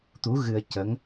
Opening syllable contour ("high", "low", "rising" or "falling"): rising